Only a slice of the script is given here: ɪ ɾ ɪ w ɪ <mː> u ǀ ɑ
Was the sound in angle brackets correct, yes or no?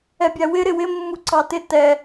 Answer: yes